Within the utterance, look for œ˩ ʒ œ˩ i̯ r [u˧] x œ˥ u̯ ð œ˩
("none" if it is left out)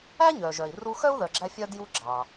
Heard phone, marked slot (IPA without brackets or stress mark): u˧